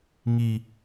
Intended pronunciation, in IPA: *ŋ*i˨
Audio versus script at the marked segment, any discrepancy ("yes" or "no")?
no